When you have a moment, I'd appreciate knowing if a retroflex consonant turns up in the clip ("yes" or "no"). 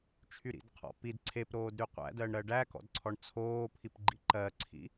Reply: yes